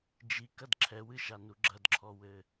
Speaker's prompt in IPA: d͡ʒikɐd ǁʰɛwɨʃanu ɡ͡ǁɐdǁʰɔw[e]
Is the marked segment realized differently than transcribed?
yes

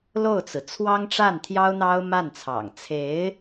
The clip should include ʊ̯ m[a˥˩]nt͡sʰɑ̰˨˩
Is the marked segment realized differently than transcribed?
no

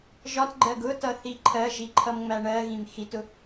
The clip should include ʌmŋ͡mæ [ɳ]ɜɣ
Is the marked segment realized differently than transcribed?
no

